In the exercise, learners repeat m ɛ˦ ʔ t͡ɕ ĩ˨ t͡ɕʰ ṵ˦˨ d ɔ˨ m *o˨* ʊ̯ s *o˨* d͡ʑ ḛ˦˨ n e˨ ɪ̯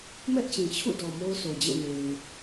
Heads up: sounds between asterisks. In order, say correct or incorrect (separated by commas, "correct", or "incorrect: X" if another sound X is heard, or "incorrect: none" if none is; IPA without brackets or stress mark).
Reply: incorrect: o˦, correct